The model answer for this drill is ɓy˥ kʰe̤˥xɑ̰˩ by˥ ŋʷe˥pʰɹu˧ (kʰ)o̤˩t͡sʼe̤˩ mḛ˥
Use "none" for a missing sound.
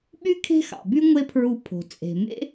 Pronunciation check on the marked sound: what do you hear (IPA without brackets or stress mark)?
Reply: pʰ